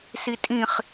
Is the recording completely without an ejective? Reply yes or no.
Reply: no